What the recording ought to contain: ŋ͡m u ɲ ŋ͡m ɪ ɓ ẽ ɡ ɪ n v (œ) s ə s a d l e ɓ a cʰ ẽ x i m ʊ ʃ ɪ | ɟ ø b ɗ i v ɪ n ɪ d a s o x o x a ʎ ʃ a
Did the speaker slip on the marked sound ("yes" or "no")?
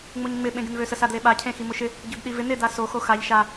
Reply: yes